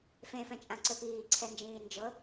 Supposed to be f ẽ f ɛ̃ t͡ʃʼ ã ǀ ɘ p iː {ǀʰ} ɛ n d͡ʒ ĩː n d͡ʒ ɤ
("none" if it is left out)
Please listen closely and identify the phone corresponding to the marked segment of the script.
ǀʰ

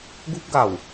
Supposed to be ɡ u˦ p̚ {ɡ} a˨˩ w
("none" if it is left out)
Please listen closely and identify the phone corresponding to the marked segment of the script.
ɡ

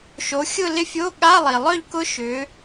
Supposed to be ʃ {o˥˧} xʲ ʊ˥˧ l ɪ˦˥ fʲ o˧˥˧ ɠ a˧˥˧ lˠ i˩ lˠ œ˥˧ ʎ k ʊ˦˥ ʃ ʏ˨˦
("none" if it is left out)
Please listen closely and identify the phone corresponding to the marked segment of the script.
o˨˦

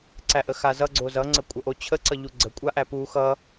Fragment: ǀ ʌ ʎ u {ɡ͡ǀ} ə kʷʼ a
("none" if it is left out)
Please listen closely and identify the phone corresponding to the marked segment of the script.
ɡ͡ǀ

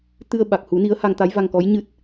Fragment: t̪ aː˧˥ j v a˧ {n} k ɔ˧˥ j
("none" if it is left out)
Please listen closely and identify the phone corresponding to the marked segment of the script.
ŋ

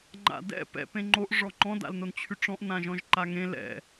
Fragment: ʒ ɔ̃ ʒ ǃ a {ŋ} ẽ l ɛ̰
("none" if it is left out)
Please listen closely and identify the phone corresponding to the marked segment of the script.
ŋ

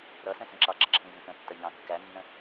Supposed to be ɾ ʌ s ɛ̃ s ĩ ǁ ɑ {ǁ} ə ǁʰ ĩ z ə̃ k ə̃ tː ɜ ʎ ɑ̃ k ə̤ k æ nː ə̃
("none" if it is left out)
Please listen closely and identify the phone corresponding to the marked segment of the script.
ǁ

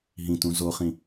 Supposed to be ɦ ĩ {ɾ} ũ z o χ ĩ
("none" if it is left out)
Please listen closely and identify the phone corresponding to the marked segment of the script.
t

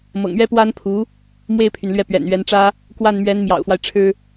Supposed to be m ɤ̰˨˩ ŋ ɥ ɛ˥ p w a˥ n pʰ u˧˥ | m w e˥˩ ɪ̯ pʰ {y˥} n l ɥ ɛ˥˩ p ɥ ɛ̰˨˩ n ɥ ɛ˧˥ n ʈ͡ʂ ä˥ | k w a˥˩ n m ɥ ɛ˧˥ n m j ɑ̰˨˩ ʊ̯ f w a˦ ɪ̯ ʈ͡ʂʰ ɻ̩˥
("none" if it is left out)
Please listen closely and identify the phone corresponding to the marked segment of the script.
y˩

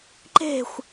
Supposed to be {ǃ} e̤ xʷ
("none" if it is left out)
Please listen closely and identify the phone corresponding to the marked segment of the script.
ǃ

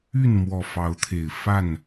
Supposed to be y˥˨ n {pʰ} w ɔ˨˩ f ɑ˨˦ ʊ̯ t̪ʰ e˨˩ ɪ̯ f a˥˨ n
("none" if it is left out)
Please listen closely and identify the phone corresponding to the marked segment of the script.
m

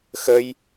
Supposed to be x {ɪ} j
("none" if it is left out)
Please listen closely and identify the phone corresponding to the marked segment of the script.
ə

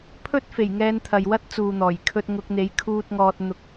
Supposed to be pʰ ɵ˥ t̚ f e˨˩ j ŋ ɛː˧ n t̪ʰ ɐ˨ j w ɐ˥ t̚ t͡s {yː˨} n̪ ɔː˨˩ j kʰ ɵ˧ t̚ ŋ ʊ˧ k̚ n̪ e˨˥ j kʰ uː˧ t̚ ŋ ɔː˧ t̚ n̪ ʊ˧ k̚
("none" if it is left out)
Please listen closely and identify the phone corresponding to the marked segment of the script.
uː˨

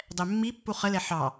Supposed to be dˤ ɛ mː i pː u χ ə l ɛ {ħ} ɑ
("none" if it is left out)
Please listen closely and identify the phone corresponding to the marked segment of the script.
ħ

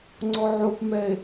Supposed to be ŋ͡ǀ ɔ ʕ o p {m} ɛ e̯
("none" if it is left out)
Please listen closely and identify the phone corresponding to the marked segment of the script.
m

